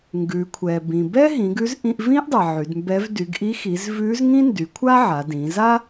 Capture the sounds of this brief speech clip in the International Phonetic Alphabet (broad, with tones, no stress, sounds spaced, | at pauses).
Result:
ŋ ɡ ʉ˩˧ kʷʰ ɛ˩ b ĩ˩ b ɛ˥ ɦ ĩ˩˧ ɡ ʉ˧˥ z ʔ ĩ˧ ʔ v ĩ˥ ʔ dˤ ɛ˩ ʕ y˩˧ d m b ɛ˧˥ v d y˩˧ ɡ ʔ i˧˥ x i˩˧ z v ʉ˧˥ z ŋ ĩ˥ n d y˩˧ kʷʰ a˥ ʕ a˩˧ d ĩ˩˧ z a˥